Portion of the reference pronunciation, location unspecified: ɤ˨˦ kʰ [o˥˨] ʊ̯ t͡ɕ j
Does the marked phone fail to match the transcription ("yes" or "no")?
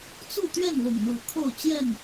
no